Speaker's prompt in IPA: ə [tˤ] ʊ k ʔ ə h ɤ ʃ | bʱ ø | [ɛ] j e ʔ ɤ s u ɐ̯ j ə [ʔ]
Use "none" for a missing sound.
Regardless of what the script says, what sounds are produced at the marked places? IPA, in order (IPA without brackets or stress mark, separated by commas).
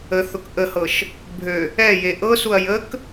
θ, ɛ, k